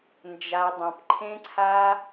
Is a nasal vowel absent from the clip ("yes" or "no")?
no